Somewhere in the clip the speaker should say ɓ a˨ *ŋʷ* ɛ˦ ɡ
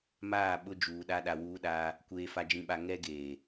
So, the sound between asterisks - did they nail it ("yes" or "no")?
no